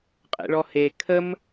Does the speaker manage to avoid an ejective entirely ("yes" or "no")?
no